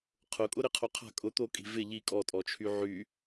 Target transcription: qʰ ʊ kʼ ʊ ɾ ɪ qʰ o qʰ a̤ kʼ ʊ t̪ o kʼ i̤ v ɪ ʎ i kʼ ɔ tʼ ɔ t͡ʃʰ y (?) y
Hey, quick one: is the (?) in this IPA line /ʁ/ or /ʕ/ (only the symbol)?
ʕ